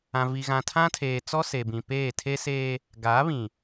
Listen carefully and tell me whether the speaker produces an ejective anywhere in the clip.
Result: no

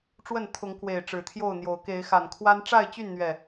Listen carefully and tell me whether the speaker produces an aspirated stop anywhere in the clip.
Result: yes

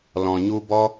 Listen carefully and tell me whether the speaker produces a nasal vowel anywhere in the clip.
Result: yes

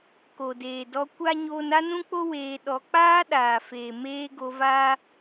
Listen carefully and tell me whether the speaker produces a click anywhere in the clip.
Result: no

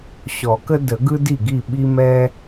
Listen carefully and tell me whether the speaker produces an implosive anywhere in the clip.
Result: yes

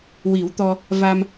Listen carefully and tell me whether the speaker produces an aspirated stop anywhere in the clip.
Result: no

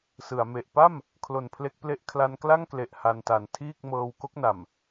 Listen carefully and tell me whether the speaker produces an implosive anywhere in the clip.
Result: no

